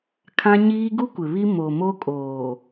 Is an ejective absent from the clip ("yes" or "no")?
no